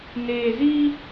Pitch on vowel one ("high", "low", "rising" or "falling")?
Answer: low